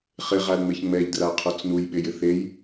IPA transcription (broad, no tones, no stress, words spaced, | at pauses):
χɪʁalŋ͡meç ŋ͡mɛʎdraqʰot͡s nujɓejɪ θej